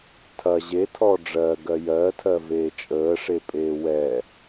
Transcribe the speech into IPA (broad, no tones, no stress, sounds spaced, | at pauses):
tʰ ɐ ʑ e tʰ ɔ ɖ͡ʐ ɜ ɡ ɜ j ɜ tʰ ɜ v eː t͡ʃʼ əː ʂ e pʼ eː w ɛ